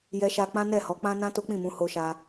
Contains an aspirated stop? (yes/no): no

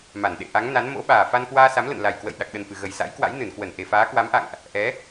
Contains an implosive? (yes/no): yes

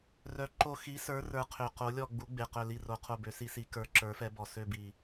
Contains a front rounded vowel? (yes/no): yes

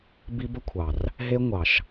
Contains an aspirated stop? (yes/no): yes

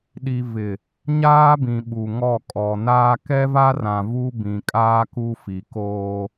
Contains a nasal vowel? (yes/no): yes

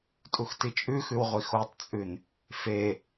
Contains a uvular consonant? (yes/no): yes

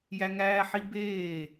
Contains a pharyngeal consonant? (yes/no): yes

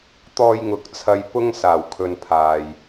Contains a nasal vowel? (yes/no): no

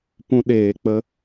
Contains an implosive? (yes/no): yes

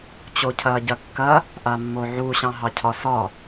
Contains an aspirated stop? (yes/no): yes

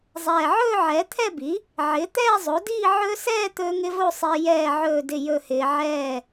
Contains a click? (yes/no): no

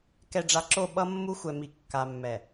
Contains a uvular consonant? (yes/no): no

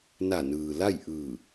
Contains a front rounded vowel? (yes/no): no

